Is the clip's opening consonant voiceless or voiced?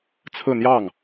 voiceless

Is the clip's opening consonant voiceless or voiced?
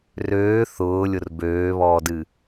voiced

